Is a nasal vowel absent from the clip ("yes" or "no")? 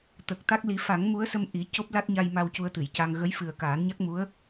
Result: yes